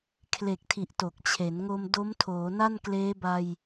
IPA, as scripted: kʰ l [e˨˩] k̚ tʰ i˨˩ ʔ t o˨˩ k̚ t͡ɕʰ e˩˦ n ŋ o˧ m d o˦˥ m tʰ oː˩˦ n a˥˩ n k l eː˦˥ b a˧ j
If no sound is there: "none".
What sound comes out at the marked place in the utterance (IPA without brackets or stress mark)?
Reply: e˨˩